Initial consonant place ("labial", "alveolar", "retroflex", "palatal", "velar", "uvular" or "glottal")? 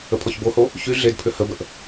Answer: labial